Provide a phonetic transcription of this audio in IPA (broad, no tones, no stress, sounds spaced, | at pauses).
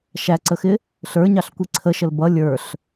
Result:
ʃ æ ǀ ə x ɪ | ɬ ə˞ ɲ ɑ ɬ kʷ i ǀʰ ə ʃ ə l b ʌ lʲ ə˞ ɬ